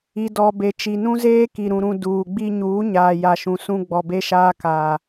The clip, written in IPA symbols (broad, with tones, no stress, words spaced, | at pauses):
i˨dɔ˨be˨ t͡ʃi˨nũ˦zeː˦ki˨ ɾũ˨ɾũ˨ duː˨ɡ͡bi˦ ɲuː˨˦ɲaː˨ ja˨ʃũ˨ sũ˦ ɡ͡bɔ˨be˦ʃaː˦ ka˨